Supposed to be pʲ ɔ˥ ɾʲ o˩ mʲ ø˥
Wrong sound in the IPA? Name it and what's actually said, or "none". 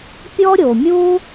ø˥ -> u˥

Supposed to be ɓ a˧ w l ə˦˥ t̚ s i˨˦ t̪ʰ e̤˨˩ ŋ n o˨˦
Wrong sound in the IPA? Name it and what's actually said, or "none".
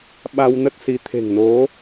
l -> n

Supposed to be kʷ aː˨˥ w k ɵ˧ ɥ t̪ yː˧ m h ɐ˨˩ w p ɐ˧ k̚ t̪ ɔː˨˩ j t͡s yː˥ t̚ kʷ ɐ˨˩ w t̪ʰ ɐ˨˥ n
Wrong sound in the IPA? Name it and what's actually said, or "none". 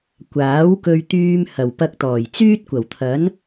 none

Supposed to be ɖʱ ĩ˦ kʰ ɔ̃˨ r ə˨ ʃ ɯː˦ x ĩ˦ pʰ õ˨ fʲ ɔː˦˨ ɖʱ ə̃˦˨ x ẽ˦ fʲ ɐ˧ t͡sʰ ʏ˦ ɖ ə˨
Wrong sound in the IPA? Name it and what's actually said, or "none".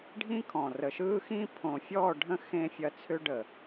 none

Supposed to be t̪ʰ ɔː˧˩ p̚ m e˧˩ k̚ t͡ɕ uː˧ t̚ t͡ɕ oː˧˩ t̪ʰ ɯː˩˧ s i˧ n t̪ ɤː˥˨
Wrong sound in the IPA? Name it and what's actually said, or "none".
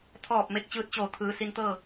uː˧ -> ɯː˧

